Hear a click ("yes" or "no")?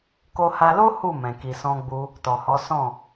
no